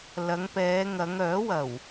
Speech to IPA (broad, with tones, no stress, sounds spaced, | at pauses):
l ɐ˨˧ ŋ p ɛː˨˧ ŋ ɐ˨˧ ŋ œː˨˥ w ɐ˨˩ w